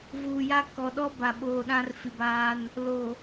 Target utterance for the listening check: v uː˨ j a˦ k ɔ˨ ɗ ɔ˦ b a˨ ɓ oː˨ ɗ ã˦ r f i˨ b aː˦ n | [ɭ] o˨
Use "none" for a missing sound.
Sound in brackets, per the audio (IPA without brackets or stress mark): l